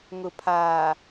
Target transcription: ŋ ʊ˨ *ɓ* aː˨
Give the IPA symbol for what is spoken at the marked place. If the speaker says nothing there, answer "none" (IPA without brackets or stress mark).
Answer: pʰ